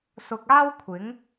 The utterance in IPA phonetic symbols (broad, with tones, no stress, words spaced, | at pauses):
sʊ˨k̚aː˥w kʷʰɪ˨˥ŋ